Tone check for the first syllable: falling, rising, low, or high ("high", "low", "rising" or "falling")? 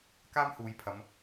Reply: high